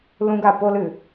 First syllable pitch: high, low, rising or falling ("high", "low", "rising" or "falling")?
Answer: high